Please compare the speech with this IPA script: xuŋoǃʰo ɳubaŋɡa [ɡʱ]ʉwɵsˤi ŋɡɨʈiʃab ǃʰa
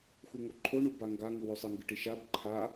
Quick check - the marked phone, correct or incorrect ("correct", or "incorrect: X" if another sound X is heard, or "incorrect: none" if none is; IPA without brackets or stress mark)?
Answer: incorrect: ŋ